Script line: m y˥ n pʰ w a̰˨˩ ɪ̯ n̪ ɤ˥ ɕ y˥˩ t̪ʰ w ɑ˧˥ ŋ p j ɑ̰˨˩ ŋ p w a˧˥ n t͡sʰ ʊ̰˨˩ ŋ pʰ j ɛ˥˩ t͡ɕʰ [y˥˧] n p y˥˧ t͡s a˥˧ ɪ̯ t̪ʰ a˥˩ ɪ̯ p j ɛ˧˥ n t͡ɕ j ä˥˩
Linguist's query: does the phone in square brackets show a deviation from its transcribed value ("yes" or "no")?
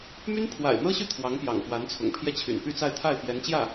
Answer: yes